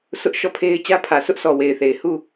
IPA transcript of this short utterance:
sʰ ʊ˦ ʔ ʃ ɔ˦˨ pʰ e˦ ɪ̯ t͡ɕ ä˦ pʰ ä˨ s ʊ˦ ʔ s ɔ˨ w e˨ ɪ̯ θ e˨ ɪ̯ h u˦˨

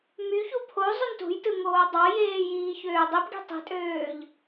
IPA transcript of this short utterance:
m y ç u pʰ o zˤ y n t ṳ j t ɯ ŋ oː dˤ ɑ j eː j iː ç øː dˤ i p ɡ i̤ tˤ i̤ tʼ øː ʎ

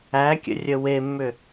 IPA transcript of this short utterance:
æ kʲ ə̰ rʲ ə w e mː ʏ

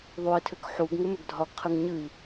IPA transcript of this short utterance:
ðˤ u i̯ tʰ ʏ k ħ u ɡ ŋ ʏ m ʏ ɡ dʱ ɒ ɡ qʰ ɨ ŋ ɲ ɨ i̯

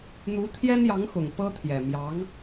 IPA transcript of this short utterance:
n̪ u˧˥ t̪ʰ j ɛ˥ n j ɑ˧˥ ŋ x ʊ˨˩ ŋ p ɤ˥ t̪ʰ j ɛ˨˩ m j ɑ˧˥ ŋ

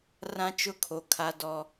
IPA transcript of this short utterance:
r ã˦ t͡ʃ ʊ˦˨ kʰ o˨ kʰ a˦ d ɔ˦

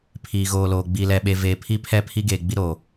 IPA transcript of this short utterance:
pʰ iː˨ ɣ oː˨ l oː˨ ɡ͡b i˨ l ɛ˨ ɓ e˨ v eː˨ pʰ i˦ pʰ ɛ˦˨ pʰ i˦ ɡ eː˨ ɡ͡b i˦ ɾ oː˨

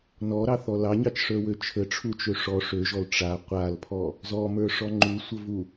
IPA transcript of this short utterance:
n ɔ ɾ ɑ θ ɔ l ɑ ɲ ɑ t͡ʃ ʂ ə˞ w ø t͡ʃʰ ə ʈ͡ʂʰ u t͡ʃ ø ʂ ɔ ʂ ø ʒ ɔ l ʈ͡ʂ a qʷ a l pʰ ɔ | z ɔ m ə˞ ʂ ɔ ŋ͡ǃ u sʷ ə v u

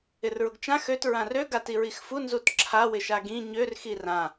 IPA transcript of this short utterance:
ɪ r ɹ ʊ ɡ t͡ʃ ã x ø t ɹ ã r ø ɡ a t i ɹ i x f u n z u t ǁʰ a w ɪ ʃ a ɡ ĩ ɲ ø r x i r ã

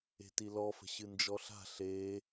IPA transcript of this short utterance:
e̤ t i l ɔ f ə̤ ɕ ɨ n d͡ʒ ɔ ɬ a̤ ɬ e

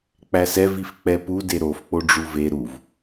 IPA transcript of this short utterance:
k͡p æ s ɛ v i f k͡p ɛ p u d e ɾ o f k͡p o ɖ͡ʐ u v e ɾ u v

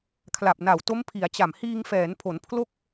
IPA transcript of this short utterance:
kʰ l a˨˩ p̚ n a˨˩ w t o˦˥ m pʰ i˩˦ a̯ t͡ɕ a˨˩ m h iː˧ ŋ f ɛː˩˦ n pʰ o˩˦ n pʰ l o˥˩ k̚

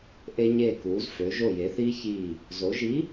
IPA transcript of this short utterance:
ʔ e˧ ɲ eː˧˩ k uː˩˧ z f ø˩˧ ʒ o˧˩ j e˩˧ θ iː˧ ç iː˧˩ | z o˩˧ ʒ i˨˥

